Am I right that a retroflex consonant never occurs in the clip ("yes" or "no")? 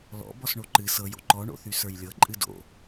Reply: no